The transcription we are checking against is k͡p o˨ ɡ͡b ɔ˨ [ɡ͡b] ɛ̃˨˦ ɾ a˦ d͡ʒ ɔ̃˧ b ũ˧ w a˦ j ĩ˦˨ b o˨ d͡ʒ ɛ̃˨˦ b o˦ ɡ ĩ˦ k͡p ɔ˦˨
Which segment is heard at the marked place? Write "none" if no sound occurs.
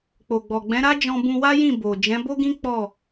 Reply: ɡ͡b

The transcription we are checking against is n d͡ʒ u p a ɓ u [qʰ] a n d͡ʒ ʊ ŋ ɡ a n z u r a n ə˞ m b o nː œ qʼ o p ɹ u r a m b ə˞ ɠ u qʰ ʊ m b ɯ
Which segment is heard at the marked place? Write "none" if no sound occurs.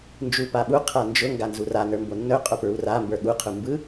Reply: qʰ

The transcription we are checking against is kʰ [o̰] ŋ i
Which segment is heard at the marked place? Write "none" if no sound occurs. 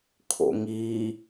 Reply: o̰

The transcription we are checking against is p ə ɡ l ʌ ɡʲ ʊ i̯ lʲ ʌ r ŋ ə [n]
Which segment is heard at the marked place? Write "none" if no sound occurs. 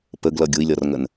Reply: n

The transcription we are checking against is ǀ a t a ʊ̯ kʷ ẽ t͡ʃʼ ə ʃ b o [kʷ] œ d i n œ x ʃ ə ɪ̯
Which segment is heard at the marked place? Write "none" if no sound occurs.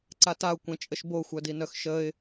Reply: xʷ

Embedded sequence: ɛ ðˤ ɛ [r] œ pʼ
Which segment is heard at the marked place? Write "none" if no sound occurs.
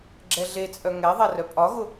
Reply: r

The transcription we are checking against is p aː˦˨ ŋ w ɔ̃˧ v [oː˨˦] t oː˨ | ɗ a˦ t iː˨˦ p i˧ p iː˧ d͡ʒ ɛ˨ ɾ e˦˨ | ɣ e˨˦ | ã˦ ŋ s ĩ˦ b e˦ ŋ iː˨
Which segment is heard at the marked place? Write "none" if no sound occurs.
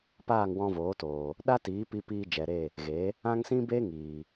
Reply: oː˨˦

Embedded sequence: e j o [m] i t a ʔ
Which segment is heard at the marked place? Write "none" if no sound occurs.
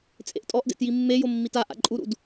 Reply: mː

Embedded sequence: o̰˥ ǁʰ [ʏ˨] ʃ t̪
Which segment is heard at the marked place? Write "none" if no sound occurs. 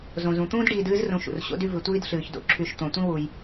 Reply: y˨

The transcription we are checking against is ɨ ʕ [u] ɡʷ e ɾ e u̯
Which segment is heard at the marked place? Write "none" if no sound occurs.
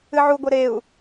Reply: u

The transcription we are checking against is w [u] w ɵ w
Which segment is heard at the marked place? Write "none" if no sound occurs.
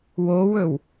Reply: o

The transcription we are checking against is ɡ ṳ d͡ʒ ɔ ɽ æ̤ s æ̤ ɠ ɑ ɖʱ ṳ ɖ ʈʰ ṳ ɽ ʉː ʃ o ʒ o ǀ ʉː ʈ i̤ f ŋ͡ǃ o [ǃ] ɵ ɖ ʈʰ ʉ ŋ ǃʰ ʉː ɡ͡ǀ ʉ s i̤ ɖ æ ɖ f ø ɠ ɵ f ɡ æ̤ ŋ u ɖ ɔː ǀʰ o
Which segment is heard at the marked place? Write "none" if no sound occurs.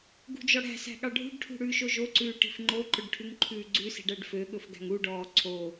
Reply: ǃ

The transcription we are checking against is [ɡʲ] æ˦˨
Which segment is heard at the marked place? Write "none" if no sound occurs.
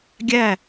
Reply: ɡʲ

